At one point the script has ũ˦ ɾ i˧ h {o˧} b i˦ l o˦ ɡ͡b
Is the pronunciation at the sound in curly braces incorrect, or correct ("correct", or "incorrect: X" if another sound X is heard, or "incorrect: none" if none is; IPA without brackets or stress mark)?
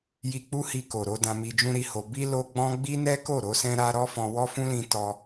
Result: correct